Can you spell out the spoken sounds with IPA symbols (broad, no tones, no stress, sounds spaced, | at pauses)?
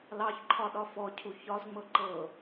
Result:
l ɑ ç ǃʰ ɒ ɗ ɒ f ɔ cʰ u ç ɒ z ŋ͡m ɤ ǃ ɤ